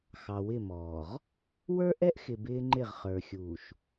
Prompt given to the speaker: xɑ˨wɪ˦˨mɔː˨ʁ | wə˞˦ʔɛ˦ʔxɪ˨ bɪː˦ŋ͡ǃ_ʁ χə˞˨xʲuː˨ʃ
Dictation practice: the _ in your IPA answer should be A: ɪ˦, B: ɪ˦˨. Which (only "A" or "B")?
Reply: B